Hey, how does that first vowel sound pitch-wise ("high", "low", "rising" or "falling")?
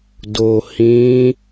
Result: low